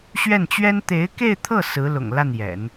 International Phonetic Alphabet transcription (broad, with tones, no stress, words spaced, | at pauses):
ɕɥɛ˥˩nt͡ɕɥɛ˥n t̪e˧˥ɪ̯ke˥˧ɪ̯t̪ʰɤ˥˩ sɹ̩˧˥lʊ̰˨˩ŋ la˥˩njɛ̰˨˩˦n